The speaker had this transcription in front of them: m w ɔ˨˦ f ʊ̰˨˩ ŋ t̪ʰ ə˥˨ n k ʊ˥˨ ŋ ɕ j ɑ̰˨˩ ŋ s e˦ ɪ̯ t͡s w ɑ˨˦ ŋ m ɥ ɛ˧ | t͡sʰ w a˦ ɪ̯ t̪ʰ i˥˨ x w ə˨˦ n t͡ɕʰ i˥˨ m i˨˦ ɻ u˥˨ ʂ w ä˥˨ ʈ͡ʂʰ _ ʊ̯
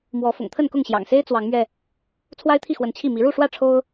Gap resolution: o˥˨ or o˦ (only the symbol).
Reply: o˦